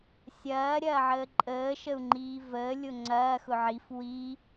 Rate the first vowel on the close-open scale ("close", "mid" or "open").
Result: open